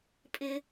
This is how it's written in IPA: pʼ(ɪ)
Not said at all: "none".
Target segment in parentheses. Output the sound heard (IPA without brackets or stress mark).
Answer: ɪ